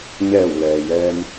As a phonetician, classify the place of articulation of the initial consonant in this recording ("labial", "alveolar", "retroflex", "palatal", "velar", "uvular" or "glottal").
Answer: palatal